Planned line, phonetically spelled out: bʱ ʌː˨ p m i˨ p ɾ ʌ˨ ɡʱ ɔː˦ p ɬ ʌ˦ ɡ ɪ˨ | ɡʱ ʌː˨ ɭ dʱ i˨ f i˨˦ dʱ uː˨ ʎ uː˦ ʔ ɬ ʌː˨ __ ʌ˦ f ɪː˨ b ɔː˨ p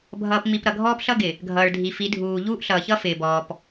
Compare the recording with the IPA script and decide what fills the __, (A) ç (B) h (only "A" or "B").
A